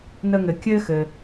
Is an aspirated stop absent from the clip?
yes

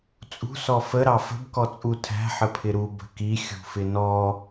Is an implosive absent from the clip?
yes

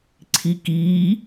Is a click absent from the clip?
no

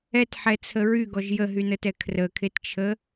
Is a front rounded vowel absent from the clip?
no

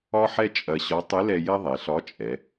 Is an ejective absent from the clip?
no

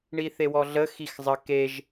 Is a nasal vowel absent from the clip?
yes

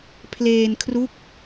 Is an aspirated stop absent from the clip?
no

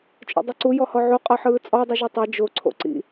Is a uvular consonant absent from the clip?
no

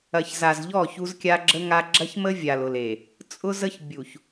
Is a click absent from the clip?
no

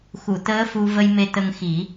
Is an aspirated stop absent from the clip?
yes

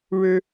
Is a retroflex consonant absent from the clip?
no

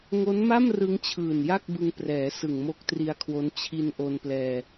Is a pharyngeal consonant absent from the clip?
yes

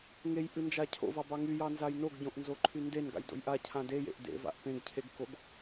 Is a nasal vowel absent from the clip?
no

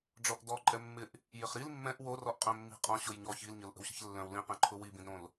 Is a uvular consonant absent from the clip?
no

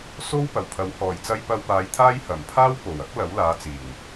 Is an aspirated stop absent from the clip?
no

